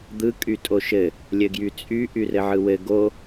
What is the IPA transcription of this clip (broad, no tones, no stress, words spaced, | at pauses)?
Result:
d̪ɯ kʼytʼoʃɘ | lʲɘɡjyt͡sʼy ʔyrɘʕɯwɘ ɡo